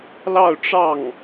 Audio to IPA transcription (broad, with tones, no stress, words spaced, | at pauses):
lɑ˥˧ʊ̯ʈ͡ʂɑ˥˩ŋ